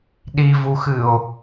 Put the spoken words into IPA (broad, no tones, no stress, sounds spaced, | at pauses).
ɗ i v u x ɨ o̯